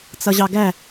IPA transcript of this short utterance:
t͡sʌʑɑɡæ

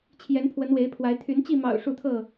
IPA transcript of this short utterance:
t͡ɕʰjɛ˨˦npʰwə˨˦nwe˨˦ɪ̯pʰwa˨˦ɪ̯ t̪ʰy˨˦n t͡ɕi˥˨mɑ̰˨˩ʊ̯ ʂu˥˨t̪ʰɤ˥˨

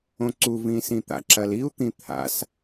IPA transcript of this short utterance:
õǀuvĩ sĩt̪a̰ǁɐl iu̯t̪ĩ t̪ʰa̰s

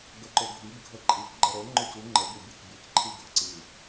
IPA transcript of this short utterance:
ɡɛǃoɡʱib ɡʱəǃʼik ɡ͡ǃəɾo ŋ͡ǃøcu ŋ͡ǃə bubʲøcbʲøc ǃʰiɡʱəǀi

